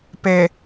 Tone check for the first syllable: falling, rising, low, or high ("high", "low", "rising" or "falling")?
low